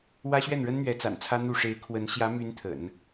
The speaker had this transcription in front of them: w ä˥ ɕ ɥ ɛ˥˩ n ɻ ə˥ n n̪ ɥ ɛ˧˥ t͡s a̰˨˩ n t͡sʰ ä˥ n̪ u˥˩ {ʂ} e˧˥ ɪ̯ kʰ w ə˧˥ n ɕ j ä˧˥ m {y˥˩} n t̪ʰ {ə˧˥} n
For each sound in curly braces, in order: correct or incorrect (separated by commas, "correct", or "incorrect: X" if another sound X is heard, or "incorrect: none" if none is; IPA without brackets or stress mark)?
correct, incorrect: y˧˥, incorrect: ə̰˨˩˦